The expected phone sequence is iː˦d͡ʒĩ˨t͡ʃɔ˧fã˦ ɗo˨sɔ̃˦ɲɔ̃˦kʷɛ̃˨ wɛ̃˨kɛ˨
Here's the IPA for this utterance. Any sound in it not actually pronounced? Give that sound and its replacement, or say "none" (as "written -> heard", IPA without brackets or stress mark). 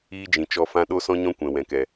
o˨ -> o˦